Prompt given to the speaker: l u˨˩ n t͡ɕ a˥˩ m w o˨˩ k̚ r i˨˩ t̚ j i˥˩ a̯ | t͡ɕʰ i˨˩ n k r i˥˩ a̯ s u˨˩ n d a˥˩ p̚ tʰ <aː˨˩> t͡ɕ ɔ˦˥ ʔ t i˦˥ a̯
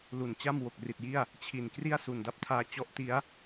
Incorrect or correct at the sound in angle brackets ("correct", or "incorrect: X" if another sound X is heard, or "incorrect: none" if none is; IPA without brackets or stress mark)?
incorrect: aː˧